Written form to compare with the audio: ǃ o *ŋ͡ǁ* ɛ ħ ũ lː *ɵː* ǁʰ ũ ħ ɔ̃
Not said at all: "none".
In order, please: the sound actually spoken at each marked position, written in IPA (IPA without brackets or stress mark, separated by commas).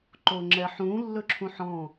ŋ͡ǁ, ɵ